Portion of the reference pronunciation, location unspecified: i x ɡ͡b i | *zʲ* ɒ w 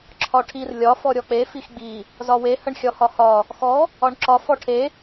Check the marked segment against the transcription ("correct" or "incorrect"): incorrect